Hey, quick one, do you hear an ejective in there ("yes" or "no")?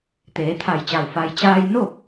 no